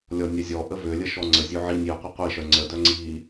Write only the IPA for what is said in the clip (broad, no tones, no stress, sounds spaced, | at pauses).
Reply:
lʲ ɔ nʲ ɛ zʲ ɔ ʔ ə v ø lʲ ə ʃ ɔ ŋ͡ǀ ə zʲ ø ʕ i nʲ i ə̯ qʷ ə qʷ i ʃ œ ŋ͡ǀ ə d œ ŋ͡ǀ i